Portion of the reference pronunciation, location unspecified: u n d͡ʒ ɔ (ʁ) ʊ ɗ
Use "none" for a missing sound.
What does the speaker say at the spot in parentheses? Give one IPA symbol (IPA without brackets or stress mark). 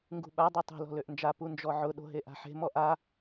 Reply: ʕ